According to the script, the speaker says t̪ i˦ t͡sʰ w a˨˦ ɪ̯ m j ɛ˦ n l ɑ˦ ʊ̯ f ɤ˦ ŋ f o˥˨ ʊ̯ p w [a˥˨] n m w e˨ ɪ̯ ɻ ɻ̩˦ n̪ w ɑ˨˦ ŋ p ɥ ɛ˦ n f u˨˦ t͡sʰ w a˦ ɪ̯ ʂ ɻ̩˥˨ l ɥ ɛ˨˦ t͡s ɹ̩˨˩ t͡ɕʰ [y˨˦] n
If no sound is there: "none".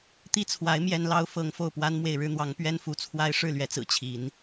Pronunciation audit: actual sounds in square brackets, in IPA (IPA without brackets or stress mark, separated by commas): a˦, i˨˦